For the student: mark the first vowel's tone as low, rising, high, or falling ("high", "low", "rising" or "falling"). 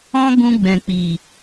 high